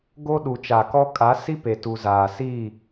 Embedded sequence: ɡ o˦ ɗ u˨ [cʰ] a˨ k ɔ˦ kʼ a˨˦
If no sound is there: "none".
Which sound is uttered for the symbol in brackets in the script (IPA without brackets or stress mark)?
t͡ʃ